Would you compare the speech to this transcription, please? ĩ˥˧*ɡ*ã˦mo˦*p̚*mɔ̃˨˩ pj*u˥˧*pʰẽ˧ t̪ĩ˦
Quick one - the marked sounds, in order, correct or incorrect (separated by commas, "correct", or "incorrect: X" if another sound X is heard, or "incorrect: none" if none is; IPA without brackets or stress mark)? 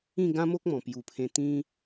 correct, incorrect: k̚, incorrect: u˨˩